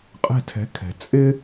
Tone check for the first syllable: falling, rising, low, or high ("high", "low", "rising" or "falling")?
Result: falling